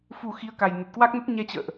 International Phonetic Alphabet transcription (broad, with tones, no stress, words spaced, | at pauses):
fu˨˩ xi˨˦ə̯ka˨˩j nə˨˩t̚kwa˦˥k̚nə˦˥t̚ ɲɛ˧t͡ɕə̰ː˧˨ʔ